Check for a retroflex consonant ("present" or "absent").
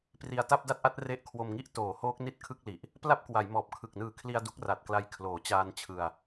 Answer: absent